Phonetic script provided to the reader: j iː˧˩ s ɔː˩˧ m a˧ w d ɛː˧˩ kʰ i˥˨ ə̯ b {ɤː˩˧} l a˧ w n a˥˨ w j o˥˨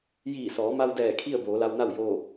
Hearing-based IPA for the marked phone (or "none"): oː˩˧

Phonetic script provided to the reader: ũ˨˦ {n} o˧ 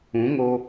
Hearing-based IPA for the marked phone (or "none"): ŋ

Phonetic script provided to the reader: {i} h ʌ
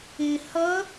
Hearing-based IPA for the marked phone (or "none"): ɪ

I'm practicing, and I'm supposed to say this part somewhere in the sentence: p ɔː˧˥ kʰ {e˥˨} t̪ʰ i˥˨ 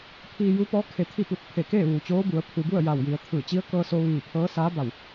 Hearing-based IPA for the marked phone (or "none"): e˧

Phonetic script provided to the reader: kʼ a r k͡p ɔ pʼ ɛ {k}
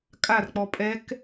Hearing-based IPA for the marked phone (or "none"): k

